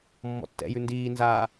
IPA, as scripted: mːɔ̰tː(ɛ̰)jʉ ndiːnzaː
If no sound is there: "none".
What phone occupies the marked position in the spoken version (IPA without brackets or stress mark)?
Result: ɛ̰